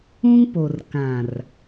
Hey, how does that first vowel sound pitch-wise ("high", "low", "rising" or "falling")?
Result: high